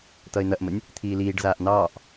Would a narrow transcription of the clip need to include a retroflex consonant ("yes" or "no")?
yes